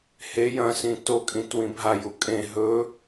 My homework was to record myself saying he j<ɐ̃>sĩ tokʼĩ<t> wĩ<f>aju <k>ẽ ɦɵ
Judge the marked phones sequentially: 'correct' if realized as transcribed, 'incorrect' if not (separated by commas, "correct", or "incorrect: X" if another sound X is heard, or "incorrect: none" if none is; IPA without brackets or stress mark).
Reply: correct, correct, incorrect: bʱ, incorrect: kʼ